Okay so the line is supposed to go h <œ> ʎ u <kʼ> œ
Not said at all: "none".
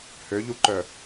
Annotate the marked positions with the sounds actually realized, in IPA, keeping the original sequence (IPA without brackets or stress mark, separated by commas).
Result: ø, ǃ